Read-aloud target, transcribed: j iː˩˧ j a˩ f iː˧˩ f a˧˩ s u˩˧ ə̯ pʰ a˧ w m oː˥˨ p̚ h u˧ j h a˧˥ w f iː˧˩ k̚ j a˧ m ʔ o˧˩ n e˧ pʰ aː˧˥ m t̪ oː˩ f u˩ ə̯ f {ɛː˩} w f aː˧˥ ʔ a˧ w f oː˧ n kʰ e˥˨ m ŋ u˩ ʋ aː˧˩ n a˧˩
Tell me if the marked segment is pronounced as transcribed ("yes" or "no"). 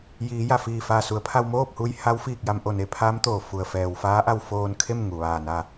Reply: yes